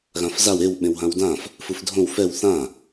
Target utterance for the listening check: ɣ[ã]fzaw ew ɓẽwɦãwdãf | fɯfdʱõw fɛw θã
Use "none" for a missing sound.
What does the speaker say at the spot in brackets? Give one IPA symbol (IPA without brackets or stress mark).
ã